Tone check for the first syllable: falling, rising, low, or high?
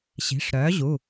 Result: rising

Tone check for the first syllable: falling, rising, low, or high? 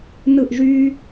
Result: falling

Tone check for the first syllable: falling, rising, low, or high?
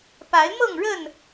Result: rising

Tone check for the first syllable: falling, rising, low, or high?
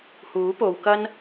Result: rising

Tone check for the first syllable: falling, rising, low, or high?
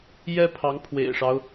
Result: high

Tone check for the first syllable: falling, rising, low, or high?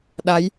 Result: rising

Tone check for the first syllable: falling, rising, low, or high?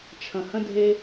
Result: low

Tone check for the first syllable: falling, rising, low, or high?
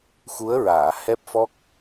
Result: rising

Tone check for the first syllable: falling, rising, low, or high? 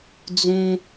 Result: high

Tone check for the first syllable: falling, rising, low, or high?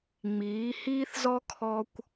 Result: rising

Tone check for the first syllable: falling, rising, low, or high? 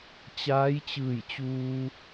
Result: rising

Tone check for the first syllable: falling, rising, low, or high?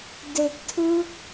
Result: low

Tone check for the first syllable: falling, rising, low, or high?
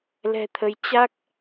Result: low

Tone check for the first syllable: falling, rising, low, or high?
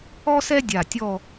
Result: high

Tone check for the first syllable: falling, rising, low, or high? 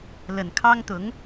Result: low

